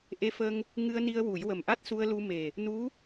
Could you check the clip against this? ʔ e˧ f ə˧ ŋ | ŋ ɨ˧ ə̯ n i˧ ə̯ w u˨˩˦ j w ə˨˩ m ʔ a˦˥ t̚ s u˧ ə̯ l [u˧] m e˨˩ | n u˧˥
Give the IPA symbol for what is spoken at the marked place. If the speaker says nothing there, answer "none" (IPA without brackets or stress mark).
u˧